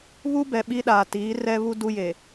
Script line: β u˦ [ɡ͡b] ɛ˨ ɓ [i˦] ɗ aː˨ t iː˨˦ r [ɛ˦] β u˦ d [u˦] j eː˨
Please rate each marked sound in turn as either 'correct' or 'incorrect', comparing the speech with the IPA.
incorrect, correct, correct, correct

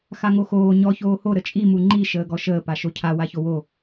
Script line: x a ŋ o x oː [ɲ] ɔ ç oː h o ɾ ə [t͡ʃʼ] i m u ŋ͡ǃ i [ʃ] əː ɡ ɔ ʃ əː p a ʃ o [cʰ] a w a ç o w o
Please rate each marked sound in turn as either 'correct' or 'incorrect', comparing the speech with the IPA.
correct, correct, correct, correct

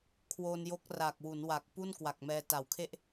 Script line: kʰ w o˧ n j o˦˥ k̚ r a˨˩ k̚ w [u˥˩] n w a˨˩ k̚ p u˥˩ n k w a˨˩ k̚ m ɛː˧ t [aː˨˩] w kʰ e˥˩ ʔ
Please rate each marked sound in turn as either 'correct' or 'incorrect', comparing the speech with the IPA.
incorrect, incorrect

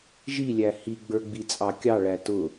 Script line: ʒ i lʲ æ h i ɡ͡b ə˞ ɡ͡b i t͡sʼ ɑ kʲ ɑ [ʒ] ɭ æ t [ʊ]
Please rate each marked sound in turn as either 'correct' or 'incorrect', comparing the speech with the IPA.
incorrect, correct

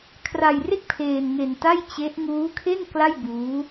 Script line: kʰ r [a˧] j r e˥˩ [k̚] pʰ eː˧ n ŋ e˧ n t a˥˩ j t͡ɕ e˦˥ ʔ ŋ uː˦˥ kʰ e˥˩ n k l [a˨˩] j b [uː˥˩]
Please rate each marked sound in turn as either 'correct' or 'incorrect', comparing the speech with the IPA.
correct, correct, incorrect, incorrect

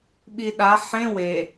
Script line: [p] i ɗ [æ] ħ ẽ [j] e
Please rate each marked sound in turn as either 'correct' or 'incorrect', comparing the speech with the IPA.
incorrect, incorrect, incorrect

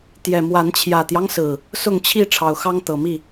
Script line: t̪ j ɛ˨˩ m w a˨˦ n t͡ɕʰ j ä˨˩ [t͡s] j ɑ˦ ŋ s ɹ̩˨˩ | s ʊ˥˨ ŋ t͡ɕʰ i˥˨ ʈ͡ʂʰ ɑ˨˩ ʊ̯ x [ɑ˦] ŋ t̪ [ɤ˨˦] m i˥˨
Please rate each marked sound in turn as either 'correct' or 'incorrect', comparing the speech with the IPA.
incorrect, correct, incorrect

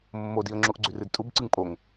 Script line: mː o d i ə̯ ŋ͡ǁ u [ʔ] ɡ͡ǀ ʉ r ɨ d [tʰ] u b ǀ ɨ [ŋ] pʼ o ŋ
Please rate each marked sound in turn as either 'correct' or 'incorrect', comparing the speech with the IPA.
correct, incorrect, correct

